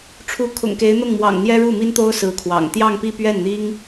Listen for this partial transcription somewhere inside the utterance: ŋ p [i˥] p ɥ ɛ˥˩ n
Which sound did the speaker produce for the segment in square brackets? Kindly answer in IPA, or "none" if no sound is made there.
i˥˧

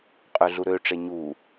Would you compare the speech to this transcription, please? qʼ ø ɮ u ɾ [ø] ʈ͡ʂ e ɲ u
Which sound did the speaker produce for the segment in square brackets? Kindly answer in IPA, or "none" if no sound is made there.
ø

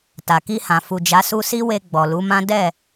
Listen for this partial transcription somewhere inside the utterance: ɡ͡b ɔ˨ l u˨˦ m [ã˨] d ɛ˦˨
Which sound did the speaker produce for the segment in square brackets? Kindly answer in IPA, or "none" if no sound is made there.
ã˦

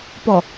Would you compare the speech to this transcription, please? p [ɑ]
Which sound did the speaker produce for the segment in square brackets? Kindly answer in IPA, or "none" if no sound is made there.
ɔ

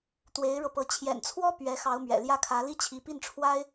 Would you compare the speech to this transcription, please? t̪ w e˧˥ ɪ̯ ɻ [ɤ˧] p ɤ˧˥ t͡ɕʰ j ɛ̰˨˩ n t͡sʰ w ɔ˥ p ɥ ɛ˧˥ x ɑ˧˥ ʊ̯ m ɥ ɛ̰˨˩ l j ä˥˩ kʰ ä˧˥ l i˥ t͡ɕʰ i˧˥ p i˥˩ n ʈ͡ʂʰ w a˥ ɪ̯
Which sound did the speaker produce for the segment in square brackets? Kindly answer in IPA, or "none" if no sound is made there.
ɤ˧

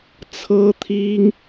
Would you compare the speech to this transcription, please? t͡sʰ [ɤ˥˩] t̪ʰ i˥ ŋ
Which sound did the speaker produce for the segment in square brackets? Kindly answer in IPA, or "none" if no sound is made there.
ɤ˥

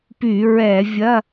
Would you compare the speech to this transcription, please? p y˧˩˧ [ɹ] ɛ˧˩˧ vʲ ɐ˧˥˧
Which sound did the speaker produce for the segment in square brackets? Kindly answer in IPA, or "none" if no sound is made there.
ɹ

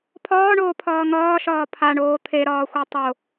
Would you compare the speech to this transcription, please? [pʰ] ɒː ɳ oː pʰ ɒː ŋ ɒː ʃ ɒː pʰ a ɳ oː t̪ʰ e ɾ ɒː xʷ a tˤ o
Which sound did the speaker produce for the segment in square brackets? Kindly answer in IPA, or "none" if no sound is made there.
pʰ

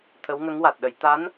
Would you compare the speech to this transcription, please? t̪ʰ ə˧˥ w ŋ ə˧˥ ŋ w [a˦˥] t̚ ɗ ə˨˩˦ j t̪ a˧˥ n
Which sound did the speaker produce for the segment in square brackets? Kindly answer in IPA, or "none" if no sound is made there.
a˨˩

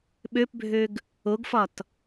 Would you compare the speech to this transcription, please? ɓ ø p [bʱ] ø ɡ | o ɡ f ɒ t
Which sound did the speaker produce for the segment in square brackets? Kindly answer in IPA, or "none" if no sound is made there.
bʱ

